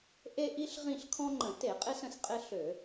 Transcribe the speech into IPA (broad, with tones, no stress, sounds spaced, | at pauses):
ʔ e˦ ʔ i˦ ɬ ʁ ĩ˦˨ ɬ kʰ ɔ̃˦ ŋ͡ǃ ə̃˧˩˧ t e˧˩˧ qʼ ɪ˦ s ə̃˦˨ s qʼ ɪ˦ ɬ ø˧˩˧